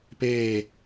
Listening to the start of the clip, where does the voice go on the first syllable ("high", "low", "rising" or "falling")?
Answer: falling